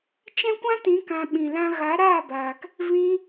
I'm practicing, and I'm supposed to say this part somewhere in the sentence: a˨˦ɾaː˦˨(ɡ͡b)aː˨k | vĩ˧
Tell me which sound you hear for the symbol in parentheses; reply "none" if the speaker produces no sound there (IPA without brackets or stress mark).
b